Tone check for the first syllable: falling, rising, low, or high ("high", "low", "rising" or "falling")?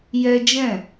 high